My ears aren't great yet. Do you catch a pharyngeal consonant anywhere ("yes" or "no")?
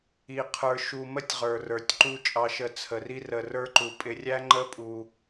no